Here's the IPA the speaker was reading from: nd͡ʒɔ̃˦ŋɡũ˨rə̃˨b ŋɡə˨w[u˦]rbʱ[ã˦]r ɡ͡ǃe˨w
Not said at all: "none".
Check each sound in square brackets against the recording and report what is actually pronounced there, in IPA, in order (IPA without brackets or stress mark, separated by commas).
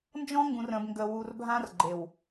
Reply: u˨, ã˦